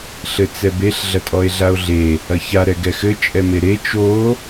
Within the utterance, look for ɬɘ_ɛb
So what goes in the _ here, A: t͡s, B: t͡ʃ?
A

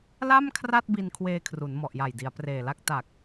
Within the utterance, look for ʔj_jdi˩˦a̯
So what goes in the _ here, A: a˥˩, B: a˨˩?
B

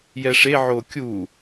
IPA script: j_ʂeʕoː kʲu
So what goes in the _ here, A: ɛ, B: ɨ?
A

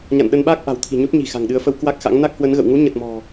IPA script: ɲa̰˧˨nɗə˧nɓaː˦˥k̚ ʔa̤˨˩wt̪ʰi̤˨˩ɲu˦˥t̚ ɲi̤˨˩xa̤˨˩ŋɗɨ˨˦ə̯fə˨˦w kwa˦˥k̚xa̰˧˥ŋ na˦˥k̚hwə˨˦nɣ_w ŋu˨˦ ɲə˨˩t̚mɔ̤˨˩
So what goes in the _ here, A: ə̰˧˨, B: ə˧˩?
A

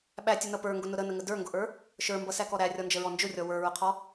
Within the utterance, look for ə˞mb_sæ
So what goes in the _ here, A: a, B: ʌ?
B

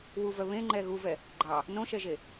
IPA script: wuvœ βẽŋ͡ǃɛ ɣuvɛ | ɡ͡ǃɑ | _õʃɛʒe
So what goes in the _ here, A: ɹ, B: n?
B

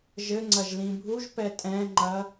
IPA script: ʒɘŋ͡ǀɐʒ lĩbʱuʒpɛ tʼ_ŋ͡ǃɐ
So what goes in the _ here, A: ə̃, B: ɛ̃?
B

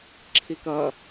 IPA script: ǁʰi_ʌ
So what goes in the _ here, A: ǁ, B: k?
B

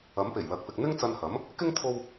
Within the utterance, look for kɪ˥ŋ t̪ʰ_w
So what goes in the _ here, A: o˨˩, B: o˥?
B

